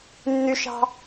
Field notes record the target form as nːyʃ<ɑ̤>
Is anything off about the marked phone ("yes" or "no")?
no